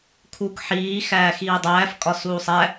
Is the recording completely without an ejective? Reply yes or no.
no